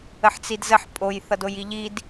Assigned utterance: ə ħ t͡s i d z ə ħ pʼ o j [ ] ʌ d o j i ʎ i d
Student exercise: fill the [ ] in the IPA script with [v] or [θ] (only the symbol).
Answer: θ